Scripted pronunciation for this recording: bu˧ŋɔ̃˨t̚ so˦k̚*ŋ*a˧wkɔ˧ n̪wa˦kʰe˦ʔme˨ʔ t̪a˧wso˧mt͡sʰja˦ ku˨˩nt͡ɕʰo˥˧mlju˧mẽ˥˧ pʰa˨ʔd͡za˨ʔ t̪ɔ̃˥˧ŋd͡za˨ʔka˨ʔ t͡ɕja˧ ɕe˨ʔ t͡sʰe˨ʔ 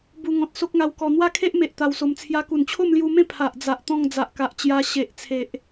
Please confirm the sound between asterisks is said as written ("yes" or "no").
yes